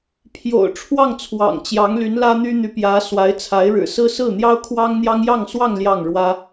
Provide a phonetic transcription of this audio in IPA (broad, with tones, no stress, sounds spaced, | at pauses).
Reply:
pʰ j o̰˨˩ ʊ̯ ʈ͡ʂʰ w ɑ˥˩ ŋ t͡sʰ w ɑ̰˨˩ ŋ t͡ɕ j ɑ˧˥ ŋ l y˧˥ n l ä˥ n̪ y˥ n̪ y˧˥ p j ä˧˥ s w a˧˥ ɪ̯ t͡sʰ a˧˥ ɪ̯ ɻ ɻ̩˨˩ s ɹ̩˥ s ɹ̩˥˩ n̪ j ɑ˥ ʊ̯ kʰ w ɑ˥ ŋ n̪ j ɑ˥ ŋ j ɑ˥˧ ŋ s w ɑ˥˧ ŋ l j ɑ˥˩ ŋ ɻ w ä˥